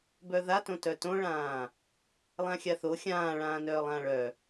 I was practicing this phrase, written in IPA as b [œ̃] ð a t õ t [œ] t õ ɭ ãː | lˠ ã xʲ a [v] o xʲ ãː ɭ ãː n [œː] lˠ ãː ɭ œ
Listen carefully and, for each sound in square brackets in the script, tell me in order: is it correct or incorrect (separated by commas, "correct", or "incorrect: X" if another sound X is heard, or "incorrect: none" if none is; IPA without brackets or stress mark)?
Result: incorrect: œ, correct, incorrect: θ, correct